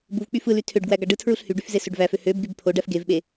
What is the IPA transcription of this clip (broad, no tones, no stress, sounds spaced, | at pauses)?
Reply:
b u v k͡p y f ɯ l y tʰ ø ɖ ɡ w æ ɡ ɑ ɖ ɯ tʰ ɹ u ɬ h y ɖ y f z e s ø ɖ v æ f ø h ø b ɡ y b pʰ o ɖ æ f ɡ e v ɓ e